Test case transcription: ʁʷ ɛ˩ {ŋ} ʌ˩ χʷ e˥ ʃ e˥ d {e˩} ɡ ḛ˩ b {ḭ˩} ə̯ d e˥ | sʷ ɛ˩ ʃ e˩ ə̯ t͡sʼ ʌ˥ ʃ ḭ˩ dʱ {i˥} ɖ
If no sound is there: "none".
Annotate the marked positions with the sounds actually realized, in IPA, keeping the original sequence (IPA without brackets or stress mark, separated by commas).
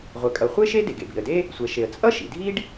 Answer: kʼ, e˩, ḭ˩, i˥